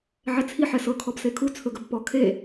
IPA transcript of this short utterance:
ʕ ɛ t͡sʰ i ħ ɛ s ɤ kʰ ɔ b s e kʰ u t͡sʰ ɵ ɡ ɵ b p ɔ kʰ e

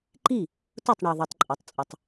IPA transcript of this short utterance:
ǃ i˥˩ | t ʊ˥˩ tˤ ɳ i˩ ðˤ i˩ tˤ ǃʼ ɛ˩ tˤ t͡sʼ ʊ˩ tˤ

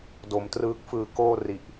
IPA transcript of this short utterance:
d o˩˦ m t r ɯː˦˥ k̚ f ɯː˧ k oː˥˩ r i˨˩ ʔ

